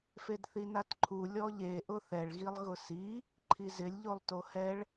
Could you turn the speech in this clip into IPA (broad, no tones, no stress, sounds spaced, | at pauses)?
f e d θ i n a t ǃʰ u lʲ ɔ ʎ e ʔ ʊ θ ɛ ɭ ɣ i lˠ ɣ ʊ s i | ǃʰ i z ɪ lʲ ʎ o lˠ t o h ɛ ɭ